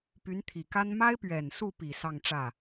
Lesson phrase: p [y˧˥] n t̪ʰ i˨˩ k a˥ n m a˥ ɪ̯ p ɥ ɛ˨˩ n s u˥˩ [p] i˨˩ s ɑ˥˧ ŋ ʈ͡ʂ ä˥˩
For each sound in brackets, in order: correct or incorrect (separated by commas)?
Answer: correct, correct